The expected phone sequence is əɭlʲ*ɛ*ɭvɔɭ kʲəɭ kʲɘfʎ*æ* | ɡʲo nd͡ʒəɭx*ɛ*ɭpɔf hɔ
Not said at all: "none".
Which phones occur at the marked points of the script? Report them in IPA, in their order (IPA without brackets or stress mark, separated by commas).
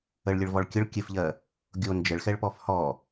ɘ, ɜ, ɛ